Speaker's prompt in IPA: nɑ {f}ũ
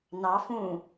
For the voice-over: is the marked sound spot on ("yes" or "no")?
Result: yes